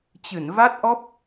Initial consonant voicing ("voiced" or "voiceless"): voiceless